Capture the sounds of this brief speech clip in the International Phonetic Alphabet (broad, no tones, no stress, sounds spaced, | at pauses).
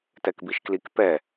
t ɛ k b i ʃ k l i k p ɛ